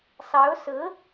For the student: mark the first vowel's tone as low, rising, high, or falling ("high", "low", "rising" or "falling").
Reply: rising